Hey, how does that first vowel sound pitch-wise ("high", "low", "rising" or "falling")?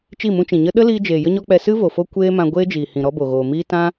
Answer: falling